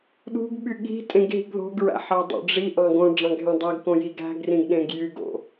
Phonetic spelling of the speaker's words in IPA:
ɗ ṳ ɡ ɓ y ɠ i̤ tʼ ẽ ɡ ɦ i̤ ɡ ð o̤ ɡ ɹ æ̰ ħ ɑ dˤ o̰ ɖ͡ʐ i ʔ ɑ̃ ɡ õ ɖ͡ʐ ɑ̃ ɡ ɦ ẽ dˤ æ ɡ k õ j i ɡ æ̤ ɡ r ĩ ɡ ɗ ẽ ɡ j y ɡ o̰

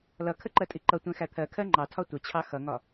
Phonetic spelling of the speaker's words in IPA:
l ʌ kʰ ə ǃ ɜ tʼ i ǃ ʌ tʷ ɛ̃ x æ t̪ʰ ɜ kʰ ɜ ŋ͡ǃ ɑ tʰ ɒ tʷ ə t͡ɕʰ ɑ x ʌ ŋ ɒ

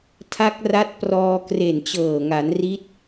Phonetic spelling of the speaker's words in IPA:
tʰ a˦˥ k̚ r a˦˥ t̚ p r ɔː˧ k r e˨˩ n t͡ɕ ɤː˨˩ ŋ a˩˦ n r i˦˥ t̚

